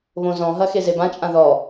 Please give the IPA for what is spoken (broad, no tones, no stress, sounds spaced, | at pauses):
β õ z ɔ̃ ɦ ɐ x e z e b ã t͡ʃʼ ã ð ɔ